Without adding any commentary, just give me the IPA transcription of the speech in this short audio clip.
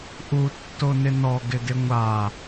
ʔutːonɪ nɔɡɪdɪ ŋʷa

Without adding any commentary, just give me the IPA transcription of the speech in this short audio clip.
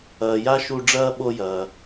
ɐː˨ja˥ʃu˦ ɖ͡ʐɐː˥ɓo˦jɐː˨

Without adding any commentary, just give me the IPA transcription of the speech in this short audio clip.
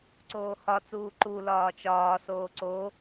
ǀoːhɒt͡suː ǃu lɒːt͡ʃɒːsoː ǀo

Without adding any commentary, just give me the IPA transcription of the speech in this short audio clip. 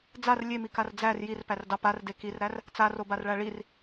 d͡zar lʲemikar d͡zær jirpærdɑ parde kirɾær | t͡sarobarɭæ ɭir

